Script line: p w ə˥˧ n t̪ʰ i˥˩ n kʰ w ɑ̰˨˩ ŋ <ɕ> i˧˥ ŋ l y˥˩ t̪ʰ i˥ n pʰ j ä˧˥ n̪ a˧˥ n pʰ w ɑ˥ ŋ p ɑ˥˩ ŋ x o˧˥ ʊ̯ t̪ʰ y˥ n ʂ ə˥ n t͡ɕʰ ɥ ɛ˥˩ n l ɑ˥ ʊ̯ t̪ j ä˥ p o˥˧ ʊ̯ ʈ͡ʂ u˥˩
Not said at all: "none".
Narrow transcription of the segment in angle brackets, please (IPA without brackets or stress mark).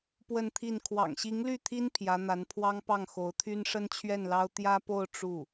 ɕ